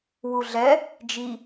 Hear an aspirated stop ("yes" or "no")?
no